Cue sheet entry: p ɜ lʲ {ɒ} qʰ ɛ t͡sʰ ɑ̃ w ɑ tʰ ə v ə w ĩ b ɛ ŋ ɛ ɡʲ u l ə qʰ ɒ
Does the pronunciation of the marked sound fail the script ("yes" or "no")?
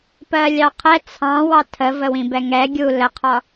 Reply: yes